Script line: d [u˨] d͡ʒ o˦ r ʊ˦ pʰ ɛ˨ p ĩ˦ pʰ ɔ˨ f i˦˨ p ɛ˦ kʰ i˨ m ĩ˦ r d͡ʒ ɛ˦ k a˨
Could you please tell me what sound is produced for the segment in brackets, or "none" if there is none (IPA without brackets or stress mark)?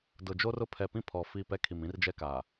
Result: ʊ˨